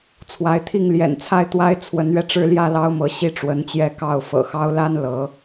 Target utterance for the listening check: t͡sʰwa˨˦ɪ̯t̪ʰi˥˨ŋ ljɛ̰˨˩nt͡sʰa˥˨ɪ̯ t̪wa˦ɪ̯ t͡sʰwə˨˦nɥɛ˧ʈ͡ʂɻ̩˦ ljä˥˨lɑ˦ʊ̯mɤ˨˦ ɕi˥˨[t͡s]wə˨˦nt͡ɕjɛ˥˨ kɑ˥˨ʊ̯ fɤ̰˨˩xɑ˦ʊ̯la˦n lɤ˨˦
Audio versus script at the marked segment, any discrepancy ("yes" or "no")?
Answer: yes